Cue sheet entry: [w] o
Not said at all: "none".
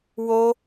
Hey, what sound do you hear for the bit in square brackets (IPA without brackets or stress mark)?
w